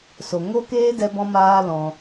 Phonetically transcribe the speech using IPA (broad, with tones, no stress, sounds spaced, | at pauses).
s o˨ ŋ o˦ k eː˦ d ɛ˦ b ɔ̃˦ m aː˦ l ɔ̃˧